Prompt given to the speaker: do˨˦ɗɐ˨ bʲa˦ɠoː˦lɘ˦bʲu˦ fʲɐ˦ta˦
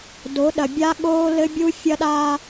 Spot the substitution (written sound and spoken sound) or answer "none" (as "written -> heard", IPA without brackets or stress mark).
t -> ɗ